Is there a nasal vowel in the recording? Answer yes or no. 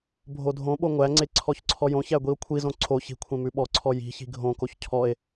yes